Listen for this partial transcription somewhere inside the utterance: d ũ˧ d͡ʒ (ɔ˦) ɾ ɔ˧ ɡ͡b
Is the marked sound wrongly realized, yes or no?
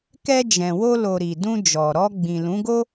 yes